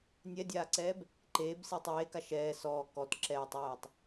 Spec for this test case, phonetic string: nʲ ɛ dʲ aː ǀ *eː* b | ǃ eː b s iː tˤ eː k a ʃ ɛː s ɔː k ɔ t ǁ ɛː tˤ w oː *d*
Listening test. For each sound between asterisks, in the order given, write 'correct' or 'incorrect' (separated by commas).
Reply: incorrect, incorrect